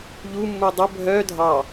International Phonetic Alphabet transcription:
ʎu mːudˤʊ bʱœ dʱɑ

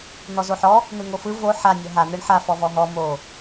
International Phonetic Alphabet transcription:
n̪ɔzoħɔ | n̪ɯŋofɯ vo ħa nʲɔɦa n̪ɯɳħa fɔvɔɦɔ mo

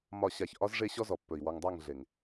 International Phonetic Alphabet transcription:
mɒ˦˨ɕa˦˨ç ʔɒ˦zʐe˦ ɕɔ˦zɔ˨pːɵ˨i̯ wɔ˨ŋdˤa˦˨ŋ ɮe˨ŋ

